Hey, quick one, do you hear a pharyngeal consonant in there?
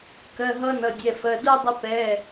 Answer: no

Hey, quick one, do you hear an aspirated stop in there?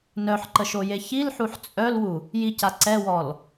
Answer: no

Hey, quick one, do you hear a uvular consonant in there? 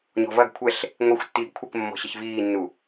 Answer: no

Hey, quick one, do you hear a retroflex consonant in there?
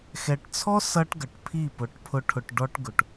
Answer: yes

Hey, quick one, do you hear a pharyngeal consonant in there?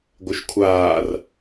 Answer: no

